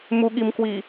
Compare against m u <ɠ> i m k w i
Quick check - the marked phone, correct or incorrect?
correct